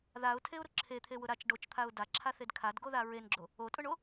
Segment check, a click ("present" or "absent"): present